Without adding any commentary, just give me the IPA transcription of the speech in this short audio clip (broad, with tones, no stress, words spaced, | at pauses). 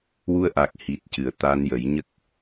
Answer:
wu˧ə̯ʔa˨˩k̚ hi˨˩t̚cɨ˨˩˨ə̯ t̪a˧njə˨˩˦j ɲə˦˥k̚